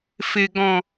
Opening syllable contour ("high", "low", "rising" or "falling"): low